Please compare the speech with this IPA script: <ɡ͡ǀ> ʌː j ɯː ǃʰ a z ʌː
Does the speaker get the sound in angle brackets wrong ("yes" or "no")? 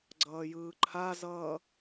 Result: no